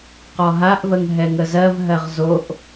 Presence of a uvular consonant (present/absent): present